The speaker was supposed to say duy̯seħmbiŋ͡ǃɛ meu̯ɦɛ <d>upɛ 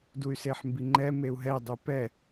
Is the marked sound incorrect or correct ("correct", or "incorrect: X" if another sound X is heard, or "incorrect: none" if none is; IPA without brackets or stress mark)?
incorrect: dˤ